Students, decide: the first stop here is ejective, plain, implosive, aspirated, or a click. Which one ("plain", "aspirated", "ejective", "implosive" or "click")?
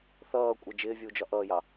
ejective